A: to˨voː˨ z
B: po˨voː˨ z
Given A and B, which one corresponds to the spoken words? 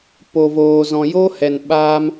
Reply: B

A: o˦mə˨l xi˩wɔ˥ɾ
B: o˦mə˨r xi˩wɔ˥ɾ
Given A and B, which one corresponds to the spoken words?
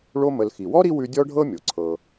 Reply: A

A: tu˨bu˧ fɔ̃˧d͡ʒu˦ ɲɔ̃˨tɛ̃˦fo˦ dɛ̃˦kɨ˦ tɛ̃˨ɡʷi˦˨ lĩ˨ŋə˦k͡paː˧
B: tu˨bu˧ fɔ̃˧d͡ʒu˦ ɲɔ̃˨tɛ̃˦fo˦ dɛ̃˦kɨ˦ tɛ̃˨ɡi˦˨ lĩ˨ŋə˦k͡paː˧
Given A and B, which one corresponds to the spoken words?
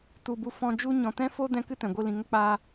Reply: A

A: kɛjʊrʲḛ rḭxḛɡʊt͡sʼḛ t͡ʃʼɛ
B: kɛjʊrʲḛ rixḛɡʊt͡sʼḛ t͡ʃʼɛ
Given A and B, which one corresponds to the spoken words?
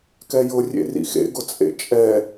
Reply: A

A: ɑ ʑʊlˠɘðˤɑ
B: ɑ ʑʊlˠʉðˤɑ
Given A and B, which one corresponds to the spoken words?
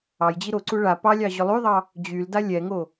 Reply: B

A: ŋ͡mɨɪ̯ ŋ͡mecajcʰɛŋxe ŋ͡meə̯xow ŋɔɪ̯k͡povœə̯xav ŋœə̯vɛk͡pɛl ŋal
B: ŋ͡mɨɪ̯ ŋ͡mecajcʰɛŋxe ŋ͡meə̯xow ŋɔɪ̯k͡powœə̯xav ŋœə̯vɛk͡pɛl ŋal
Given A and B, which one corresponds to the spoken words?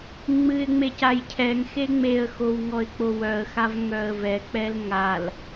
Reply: B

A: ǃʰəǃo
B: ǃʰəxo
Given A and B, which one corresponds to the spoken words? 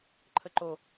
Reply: A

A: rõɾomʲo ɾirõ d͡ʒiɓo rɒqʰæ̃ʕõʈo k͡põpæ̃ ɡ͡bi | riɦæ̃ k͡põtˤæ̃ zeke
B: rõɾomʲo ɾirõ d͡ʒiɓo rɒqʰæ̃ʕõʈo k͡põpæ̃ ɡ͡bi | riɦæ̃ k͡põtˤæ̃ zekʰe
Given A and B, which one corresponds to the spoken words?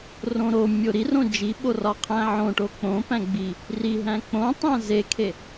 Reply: B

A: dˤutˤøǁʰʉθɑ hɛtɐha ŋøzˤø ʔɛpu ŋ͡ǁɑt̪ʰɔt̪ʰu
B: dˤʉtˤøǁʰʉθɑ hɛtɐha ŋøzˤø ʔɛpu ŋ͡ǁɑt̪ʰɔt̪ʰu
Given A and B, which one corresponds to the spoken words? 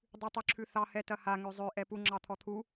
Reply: B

